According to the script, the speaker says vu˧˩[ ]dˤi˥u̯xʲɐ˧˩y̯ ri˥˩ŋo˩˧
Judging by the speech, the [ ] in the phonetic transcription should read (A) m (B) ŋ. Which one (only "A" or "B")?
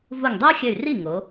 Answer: B